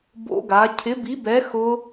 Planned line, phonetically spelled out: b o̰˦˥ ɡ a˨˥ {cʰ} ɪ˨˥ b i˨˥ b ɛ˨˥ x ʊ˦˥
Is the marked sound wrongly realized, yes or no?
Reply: no